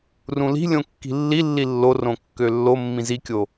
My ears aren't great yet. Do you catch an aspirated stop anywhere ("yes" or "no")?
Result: no